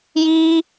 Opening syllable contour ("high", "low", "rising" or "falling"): high